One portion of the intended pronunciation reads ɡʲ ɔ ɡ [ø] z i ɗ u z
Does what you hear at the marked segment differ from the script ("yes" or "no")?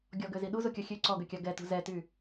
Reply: no